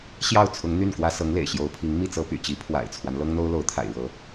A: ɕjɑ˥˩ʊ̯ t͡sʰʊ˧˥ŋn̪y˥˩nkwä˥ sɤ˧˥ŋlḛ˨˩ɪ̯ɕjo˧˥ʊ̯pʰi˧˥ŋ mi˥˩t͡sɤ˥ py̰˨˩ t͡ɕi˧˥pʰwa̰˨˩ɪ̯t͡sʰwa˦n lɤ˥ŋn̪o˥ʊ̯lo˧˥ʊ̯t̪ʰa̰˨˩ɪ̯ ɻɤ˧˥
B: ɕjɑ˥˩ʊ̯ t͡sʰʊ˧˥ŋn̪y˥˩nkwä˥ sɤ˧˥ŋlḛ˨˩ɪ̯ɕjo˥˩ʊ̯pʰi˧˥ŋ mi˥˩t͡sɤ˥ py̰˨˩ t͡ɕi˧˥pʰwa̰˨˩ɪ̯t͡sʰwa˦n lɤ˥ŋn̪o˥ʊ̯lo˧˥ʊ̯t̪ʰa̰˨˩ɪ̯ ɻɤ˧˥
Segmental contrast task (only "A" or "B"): A